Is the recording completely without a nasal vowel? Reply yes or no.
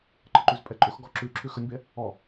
yes